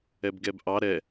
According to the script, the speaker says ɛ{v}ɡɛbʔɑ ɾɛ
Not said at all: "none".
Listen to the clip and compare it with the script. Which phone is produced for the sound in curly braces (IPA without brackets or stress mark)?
b